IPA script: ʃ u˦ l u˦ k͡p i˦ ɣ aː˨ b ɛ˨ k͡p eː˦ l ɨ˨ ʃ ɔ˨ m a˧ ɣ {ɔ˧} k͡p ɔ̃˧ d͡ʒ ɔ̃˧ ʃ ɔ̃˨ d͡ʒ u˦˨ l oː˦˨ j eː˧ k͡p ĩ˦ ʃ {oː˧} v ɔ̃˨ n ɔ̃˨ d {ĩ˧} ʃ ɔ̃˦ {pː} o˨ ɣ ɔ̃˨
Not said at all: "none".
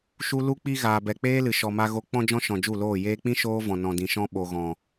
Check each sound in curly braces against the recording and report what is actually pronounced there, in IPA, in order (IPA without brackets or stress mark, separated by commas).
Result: o˧, oː˦, ĩ˨, ɓ